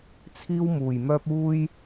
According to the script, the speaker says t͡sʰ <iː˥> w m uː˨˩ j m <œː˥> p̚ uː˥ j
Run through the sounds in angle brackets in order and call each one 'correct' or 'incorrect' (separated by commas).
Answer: correct, correct